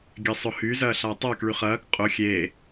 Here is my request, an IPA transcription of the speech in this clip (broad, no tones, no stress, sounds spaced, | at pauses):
ɡʲ ɛ sˤ ʊ h y z ɐː ɬ a tˤ ɐː k ɭ y χ ɐː k qʼ ʊ xʲ e